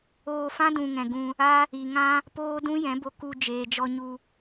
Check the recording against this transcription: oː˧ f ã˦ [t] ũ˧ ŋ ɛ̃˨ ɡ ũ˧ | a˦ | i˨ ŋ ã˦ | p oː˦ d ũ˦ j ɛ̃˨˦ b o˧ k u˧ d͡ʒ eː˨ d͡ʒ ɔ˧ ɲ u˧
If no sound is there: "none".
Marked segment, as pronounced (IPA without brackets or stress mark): d